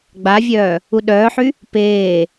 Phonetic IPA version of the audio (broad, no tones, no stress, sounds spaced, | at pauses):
ɡ͡b a vʲ œː | u ɗ œː ħ y | p eː